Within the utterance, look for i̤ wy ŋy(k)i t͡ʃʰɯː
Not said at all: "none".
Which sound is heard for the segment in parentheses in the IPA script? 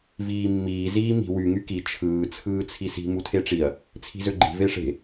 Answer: k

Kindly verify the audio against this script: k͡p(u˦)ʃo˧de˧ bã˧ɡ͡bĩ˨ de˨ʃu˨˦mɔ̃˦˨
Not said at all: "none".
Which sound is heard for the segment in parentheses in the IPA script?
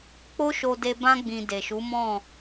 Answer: o˦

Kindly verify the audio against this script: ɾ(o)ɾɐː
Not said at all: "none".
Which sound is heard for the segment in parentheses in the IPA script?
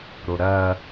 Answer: o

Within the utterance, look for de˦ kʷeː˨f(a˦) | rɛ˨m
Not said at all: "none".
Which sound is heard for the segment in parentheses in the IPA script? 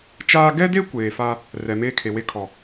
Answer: a˦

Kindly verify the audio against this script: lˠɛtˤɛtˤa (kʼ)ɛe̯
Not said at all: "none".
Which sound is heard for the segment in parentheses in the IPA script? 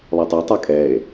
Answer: kʼ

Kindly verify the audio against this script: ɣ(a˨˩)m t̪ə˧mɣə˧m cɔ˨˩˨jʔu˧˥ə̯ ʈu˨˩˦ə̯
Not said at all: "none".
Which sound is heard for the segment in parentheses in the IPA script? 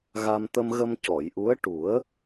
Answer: a˧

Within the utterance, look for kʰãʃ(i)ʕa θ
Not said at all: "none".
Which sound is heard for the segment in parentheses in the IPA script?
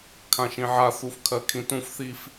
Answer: ĩ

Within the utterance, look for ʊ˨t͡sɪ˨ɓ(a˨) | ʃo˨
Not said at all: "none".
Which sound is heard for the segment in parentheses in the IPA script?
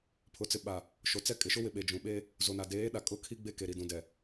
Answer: a˨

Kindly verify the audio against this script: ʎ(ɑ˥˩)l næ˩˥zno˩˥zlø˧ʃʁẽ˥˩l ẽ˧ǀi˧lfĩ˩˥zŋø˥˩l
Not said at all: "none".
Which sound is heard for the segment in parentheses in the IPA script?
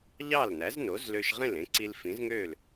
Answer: ɑ˥˩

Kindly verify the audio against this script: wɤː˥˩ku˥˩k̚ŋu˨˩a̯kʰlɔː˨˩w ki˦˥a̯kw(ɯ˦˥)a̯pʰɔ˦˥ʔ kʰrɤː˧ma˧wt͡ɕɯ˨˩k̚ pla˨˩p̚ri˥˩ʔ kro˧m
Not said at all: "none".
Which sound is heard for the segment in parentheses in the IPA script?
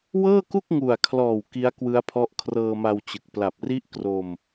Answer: ɯ˦˥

